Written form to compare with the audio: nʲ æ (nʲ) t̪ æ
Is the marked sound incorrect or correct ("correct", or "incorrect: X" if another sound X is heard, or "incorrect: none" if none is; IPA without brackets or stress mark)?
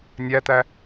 incorrect: none